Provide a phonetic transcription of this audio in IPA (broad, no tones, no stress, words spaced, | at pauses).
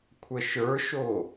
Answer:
kʷʰəʃə˞ʃo